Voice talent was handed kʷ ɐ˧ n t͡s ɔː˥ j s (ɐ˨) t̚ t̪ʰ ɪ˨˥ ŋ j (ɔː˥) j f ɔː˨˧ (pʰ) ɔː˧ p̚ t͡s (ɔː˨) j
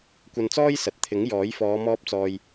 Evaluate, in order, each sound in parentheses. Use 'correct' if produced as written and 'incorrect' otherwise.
correct, incorrect: ɔː˨˥, incorrect: m, correct

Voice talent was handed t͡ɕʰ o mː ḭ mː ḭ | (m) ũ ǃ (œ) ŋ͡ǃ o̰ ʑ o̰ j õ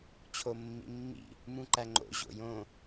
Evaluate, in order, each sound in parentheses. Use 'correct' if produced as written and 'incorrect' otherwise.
correct, incorrect: æ

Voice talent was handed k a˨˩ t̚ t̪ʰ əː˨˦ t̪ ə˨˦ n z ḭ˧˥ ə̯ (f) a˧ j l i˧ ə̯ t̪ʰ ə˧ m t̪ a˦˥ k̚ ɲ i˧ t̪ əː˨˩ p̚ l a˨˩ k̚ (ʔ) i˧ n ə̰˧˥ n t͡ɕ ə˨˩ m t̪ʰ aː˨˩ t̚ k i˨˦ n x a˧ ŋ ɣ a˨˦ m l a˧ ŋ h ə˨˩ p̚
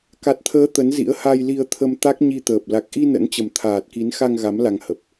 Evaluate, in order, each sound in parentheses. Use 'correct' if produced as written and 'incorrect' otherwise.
incorrect: h, correct

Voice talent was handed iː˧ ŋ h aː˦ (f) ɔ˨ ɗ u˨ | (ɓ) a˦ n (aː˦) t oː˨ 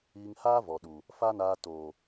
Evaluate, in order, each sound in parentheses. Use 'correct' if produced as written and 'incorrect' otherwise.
incorrect: v, incorrect: f, incorrect: aː˧

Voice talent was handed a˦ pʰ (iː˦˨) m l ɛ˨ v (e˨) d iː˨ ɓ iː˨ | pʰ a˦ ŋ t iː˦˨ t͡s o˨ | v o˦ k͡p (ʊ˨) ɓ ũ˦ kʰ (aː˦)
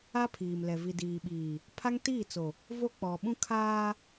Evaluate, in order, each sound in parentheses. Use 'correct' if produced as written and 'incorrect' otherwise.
incorrect: iː˨, incorrect: i˨, incorrect: ɔ˨, correct

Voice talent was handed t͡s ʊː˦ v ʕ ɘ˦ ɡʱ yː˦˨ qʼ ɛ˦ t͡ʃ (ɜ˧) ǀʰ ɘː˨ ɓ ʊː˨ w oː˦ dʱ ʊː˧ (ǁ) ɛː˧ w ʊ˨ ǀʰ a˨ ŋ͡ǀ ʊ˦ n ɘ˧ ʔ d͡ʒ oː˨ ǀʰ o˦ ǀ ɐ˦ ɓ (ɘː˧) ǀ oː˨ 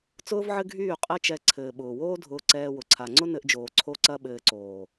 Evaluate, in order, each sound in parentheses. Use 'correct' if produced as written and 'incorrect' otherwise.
incorrect: ɛ˧, incorrect: ǀ, correct

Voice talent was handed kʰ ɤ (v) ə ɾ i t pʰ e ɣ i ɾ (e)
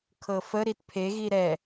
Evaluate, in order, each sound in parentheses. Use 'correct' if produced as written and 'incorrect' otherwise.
incorrect: f, incorrect: ɛ

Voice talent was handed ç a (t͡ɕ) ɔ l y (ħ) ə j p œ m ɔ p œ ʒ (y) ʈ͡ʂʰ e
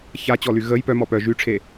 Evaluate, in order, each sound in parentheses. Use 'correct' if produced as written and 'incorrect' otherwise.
correct, incorrect: ɣ, correct

